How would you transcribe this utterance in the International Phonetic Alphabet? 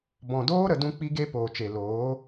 b ɔ̃˨ d oː˦ ɾ ə˨ d ũ˦ k͡p i˦ ɡ e˦ p oː˨ t͡ʃ e˨ l oː˨˦

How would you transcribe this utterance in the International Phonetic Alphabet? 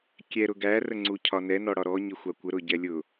kʲ ɛ ɾ ʊ ɡ æ r ə ŋ͡ǀ u cʰ ɒ n ɛ n ɔ ɽ ɒ ɾ ɔ ɲ ɪ xʷ ɑ kʷ ə ɾ ʊ ɟ ɛ lʲ ʊ

